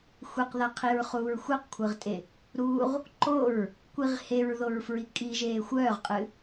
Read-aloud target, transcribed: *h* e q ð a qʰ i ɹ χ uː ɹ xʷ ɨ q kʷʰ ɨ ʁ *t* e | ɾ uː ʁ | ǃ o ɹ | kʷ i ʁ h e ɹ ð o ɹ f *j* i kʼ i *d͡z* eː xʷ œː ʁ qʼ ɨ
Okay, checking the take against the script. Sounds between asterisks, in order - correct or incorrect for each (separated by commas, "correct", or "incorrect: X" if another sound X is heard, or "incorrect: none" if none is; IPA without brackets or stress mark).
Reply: incorrect: xʷ, incorrect: tʼ, incorrect: ɹ, incorrect: ʒ